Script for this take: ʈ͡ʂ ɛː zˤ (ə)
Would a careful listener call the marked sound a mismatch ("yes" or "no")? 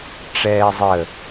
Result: no